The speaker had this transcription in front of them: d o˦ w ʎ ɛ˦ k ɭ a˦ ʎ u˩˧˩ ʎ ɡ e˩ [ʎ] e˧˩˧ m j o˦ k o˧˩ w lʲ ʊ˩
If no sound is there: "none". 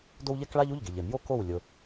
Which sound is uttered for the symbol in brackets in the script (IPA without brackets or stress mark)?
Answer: ʎ